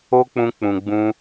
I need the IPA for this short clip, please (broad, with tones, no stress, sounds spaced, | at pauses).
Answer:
o˦ k͡p ũ˧ k͡p ũ˨ ɡ͡b ũ˧